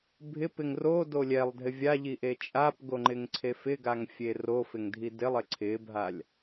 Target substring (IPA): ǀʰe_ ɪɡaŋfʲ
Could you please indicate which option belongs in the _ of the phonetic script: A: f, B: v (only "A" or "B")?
A